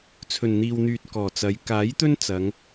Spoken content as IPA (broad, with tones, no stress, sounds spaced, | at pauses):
t͡sʰ ɵ˨˩ n n̪ iː˨ w n̪ yː˨ t̚ k ɔː˨˩ t͡s ɐ˨˧ j k aː˨˥ j t̪ ɵ˥ n t͡s ɐ˨˧ ŋ